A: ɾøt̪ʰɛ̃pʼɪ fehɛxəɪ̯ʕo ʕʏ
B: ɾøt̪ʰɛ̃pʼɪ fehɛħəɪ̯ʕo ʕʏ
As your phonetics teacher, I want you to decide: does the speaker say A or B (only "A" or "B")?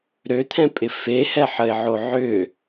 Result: B